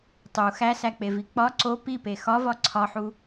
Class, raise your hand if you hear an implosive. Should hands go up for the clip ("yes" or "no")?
no